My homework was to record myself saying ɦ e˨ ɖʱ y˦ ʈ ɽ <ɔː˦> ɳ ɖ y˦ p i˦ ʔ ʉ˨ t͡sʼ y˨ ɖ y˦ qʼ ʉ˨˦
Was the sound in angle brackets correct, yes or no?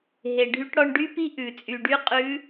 no